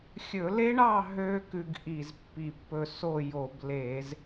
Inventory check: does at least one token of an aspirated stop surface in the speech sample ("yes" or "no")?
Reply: no